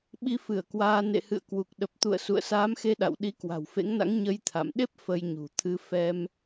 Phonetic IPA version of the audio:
ɓi˧fɨ˧˩ə̯kwaː˧ nḛ˧˨hɨ̰˧˨ə̯kwu˨˩k̚ ɗə˨˩p̚t̪ṵ˧˨ə̯ sṵ˧˨ə̯saː˨˦mxe˧ ɗa̰˧˨w ɗi˨˦kwa̤˨˩wfḛ˧˥ŋna̰˧˥ŋ ɲə˧jt̪ʰa̰˧˨mɗe˦˥p̚ fə˧jɲṳ˨˩t̪ʰɨ˧ fɛ˧m

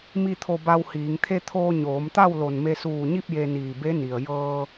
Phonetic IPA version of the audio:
mi˥˨t̪ʰo˧ba˧whiː˩˧ŋ t̪ʰe˧ t̪ʰoː˧ɲoː˩˧mt̪a˥˨w lo˧˩nme˧ suː˧˩ɲi˥˨p̚ je˧niː˧˩ be˧˥ni˩ə̯ jɤː˧

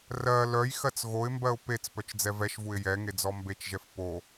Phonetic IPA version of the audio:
rɜ lœjxɜt͡s ɣoɪ̯mbɜʊ̯ pet͡s pœt͡ʃd͡zɛvɛʃvuɪ̯ jɛŋe d͡zɔmbet͡ʃʒɛf po

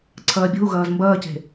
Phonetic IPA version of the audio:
ǀʰɐːbʲo̤u̯ ɣɐːzmbɐːce̤

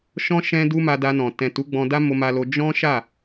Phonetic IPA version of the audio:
ʃɔ̃˦ ʃɛ̃˦du˦ ma˧da˧nɔ̃˨ tɛ̃˨ tu˨˦ɡ͡bɔ̃˧da˦ mo˧ma˧lo˧ d͡ʒɔ̃˦ʃa˦˨

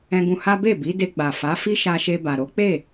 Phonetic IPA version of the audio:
ɛ̃˧ɡũ˧ha˦ be˦˨bi˨˦de˧ ɡ͡ba˨fa˨˦ fi˦ʃa˧ʃe˧ba˨ ɾo˨˦k͡pe˦˨

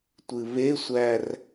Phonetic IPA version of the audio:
tʷɨβesʷær

